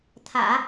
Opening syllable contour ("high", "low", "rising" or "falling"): low